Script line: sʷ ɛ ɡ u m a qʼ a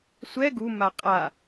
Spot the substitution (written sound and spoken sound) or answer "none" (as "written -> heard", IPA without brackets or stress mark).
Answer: none